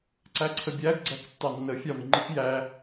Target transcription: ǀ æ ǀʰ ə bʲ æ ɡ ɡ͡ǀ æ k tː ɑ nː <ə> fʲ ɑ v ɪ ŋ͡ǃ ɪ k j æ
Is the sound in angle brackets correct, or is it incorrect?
correct